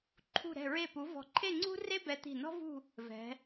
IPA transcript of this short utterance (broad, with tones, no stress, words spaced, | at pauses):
ǃʰṳ˧˩ɾɛ̤˧˩ɹe˧˩pu˩˧ vɔ̤˧˩ǃʰe˥˧ŋ͡ǀṳ˥ re˥bɛ˧t̪i̤˧˩ nɔ̤˥vṳ˥˧ | vɛ̤˩˧